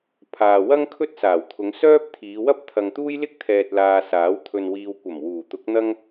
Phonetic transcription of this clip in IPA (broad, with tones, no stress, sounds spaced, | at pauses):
pʰ aː˨ w ɐ˥ ŋ kʰ ɵ˥ t̚ s aː˨˩ w t̪ʰ ʊ˨˧ ŋ s œː˥ p̚ t̪ʰ iː˨˧ w ɐ˥ p̚ t̪ʰ ɐ˨ ŋ t̪ uː˥ j l ɪ˥ k̚ t̪ʰ ɛː˨ t̚ l aː˧ s aː˨˥ w t̪ʰ ɵ˨ n w iː˨ w kʷ ɐ˨˩ m w uː˨˩ t̪ ʊ˨˥ k̚ n̪ ɐ˥ ŋ